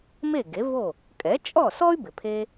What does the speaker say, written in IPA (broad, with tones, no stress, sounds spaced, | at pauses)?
m e˥˩ ɡ e˩˥ v o˥˩ | kʼ ɛ˩˥ t͡ʃʼ ɔ˥˩ s ɔ˥ y̯ b ɪ˩ pʰ e˧